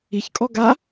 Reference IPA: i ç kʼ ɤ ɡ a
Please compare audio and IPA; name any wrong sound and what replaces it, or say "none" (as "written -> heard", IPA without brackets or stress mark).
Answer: ɤ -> ɔ